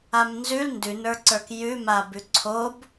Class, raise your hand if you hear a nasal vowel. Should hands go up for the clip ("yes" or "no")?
no